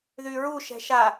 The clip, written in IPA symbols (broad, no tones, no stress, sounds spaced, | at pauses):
ð y ɹ u ʃ ɛ̤ ʃ a